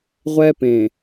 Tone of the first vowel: high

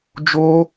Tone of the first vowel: high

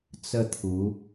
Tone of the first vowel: falling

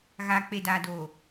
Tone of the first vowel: low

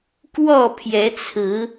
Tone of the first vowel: falling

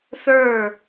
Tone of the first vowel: falling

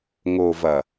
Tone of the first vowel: low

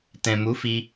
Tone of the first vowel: low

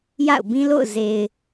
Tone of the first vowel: falling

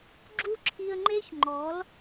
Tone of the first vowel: high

